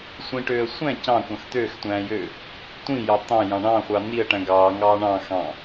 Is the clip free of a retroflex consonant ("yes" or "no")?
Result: no